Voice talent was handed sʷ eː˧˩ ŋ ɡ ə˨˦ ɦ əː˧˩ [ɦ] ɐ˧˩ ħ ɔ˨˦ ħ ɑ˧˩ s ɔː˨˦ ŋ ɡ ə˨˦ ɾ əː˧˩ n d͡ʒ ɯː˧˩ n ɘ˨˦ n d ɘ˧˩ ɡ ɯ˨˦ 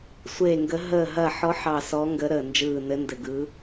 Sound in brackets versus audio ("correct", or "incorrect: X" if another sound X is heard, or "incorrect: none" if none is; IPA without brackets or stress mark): correct